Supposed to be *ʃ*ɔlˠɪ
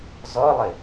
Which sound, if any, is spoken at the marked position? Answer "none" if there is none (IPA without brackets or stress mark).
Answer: z